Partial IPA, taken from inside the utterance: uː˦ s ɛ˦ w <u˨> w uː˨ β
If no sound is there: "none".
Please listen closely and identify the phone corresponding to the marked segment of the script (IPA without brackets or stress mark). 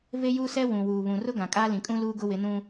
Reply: ũ˨